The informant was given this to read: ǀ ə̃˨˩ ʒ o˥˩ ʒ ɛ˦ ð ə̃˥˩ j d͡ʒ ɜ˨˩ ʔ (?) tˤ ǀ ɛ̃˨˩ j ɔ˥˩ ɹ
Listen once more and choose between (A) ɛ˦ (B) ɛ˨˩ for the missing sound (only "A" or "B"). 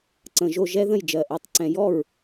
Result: B